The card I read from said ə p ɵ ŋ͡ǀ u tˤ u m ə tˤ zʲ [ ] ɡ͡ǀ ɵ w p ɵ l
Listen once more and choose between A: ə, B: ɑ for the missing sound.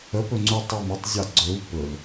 B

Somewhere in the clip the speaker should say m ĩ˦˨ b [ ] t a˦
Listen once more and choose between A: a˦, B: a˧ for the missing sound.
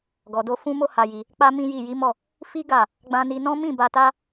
B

